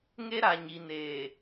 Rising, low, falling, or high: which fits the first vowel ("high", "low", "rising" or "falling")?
high